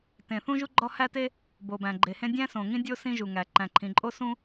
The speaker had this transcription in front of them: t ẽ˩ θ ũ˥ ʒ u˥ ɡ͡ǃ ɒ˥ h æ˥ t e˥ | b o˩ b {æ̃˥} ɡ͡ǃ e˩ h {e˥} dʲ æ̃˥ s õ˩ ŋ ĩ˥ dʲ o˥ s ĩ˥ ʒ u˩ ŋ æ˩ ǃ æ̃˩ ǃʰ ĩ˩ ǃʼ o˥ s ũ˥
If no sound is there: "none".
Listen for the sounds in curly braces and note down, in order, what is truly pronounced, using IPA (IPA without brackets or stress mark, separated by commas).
æ̃˩, ẽ˥